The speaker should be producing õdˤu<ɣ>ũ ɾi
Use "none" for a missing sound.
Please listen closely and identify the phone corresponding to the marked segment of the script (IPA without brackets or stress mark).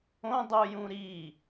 j